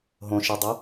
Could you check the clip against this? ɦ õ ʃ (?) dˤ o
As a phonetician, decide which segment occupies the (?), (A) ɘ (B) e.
B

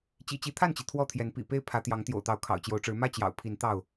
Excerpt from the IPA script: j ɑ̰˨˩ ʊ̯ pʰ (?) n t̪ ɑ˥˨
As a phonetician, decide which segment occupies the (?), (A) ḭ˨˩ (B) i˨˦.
B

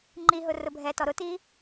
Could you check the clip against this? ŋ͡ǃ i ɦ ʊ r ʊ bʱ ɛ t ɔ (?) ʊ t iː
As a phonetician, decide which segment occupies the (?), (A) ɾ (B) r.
A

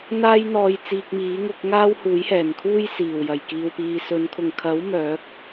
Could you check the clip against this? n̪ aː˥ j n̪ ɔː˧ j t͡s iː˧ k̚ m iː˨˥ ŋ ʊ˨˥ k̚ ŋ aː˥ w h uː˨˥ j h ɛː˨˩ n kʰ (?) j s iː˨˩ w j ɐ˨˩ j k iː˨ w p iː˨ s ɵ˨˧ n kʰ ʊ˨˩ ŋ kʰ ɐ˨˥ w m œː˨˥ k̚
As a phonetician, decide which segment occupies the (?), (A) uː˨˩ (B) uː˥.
B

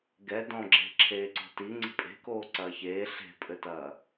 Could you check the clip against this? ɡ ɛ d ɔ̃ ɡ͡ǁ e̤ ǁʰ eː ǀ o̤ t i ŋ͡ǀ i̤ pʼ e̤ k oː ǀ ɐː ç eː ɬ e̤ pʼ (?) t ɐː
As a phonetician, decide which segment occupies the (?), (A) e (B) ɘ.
B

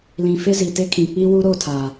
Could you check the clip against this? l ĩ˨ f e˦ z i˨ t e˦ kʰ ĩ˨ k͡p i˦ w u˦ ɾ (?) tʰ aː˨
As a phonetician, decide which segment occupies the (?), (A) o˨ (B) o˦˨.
B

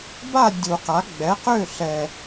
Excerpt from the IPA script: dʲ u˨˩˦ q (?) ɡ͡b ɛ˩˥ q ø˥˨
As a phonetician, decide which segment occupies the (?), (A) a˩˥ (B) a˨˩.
A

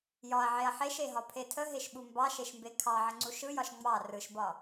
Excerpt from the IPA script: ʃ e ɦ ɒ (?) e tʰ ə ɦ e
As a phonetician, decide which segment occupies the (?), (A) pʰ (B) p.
A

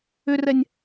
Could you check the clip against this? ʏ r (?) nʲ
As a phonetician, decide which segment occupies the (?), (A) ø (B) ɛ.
B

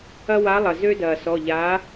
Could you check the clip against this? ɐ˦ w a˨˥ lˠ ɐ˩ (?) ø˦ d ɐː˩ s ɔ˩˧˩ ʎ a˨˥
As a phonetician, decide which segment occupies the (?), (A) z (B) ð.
A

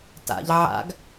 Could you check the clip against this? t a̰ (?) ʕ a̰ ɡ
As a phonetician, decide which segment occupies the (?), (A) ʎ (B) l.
A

